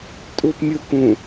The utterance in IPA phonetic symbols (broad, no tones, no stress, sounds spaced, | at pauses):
tʼ u p mʲ u k ũ